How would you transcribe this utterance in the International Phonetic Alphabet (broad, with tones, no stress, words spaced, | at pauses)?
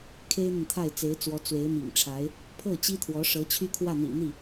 kʰe˥ɪ̯n̪ə˨nt̪ʰa˥˩ɪ̯ t͡se˧˥ɪ̯t͡swɔ˧˥ t͡swe˧˥ɪ̯mḭ˨˩ŋʈ͡ʂʰa˧˥ɪ̯ | pʰɤ˥˩t͡ɕi˥t̪ʰwɔ˧˥ʂɤ˧˥ t͡ɕʰy˥kʰwä˥˩n̪ḭ˨˩ n̪i˥˩